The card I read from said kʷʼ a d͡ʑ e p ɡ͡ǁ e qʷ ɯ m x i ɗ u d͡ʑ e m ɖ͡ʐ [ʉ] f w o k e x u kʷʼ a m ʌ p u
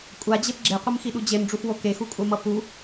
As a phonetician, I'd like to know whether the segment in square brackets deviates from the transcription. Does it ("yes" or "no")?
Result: yes